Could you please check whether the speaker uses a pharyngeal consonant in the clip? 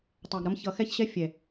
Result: no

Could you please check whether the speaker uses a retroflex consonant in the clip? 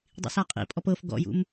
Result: no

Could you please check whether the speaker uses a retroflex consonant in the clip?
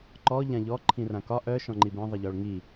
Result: yes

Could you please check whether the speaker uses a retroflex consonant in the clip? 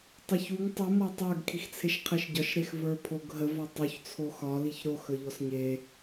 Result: no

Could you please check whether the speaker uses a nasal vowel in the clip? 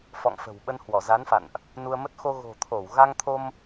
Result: no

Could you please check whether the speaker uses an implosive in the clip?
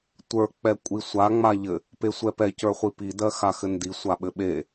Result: yes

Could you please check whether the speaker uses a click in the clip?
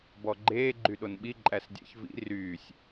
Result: yes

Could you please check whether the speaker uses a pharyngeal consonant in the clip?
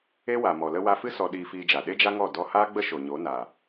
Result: no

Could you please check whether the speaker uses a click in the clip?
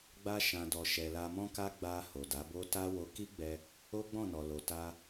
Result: no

